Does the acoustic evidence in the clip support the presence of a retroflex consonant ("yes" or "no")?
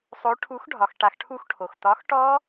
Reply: yes